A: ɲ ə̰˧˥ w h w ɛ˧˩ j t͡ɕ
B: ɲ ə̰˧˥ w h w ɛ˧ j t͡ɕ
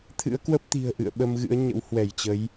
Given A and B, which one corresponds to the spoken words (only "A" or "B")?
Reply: A